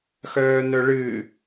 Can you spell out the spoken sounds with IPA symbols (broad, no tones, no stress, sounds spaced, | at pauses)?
x œː n œ ɭ ɨ